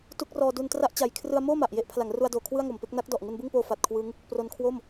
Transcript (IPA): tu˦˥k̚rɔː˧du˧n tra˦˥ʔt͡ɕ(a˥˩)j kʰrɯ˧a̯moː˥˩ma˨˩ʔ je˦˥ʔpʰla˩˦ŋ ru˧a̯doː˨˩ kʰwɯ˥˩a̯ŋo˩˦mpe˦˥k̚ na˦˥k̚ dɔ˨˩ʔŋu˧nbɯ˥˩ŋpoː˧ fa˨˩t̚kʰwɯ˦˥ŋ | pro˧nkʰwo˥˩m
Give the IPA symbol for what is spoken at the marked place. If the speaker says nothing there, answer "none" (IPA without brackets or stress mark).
a˨˩